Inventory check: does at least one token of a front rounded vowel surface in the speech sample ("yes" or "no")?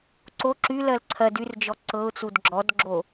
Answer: yes